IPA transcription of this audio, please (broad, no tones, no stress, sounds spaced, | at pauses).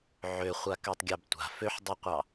ʕ ø χʷ a k ø tˤ ɡʲ ɑ b tʷ a̤ f ø ħ dˤ y qʷ ɑ